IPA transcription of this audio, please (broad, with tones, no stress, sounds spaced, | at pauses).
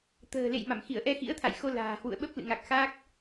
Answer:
t̪ ə̤ː˨˩ l ḛ˧˨ j m a˧˩ m x i˧˩ ə̯ ʔ ɛ˧ x ḭ˧˥ ə̯ t̪ʰ a̰˧˨ j x o˧ l a̤ː˨˩ h w ṵ˧˨ ə̯ ɓ ə˦˥ p̚ l ɨ̰˧˨ ŋ a˨˩ k̚ x a˦˥ k̚